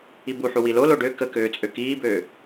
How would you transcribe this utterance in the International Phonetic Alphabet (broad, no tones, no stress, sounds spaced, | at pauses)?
i b u ħ u w i l o l o ɖ ø k ə k øː t͡sʼ ø k iː b øː